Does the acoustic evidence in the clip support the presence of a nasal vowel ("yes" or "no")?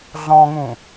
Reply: yes